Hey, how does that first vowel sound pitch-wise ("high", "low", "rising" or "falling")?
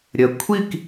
low